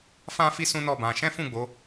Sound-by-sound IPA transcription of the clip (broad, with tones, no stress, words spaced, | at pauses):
fã˦fi˦ sũ˦nɔ˦˨bã˧ ʃɛ̃˦fũ˦˨ɡ͡bo˨˦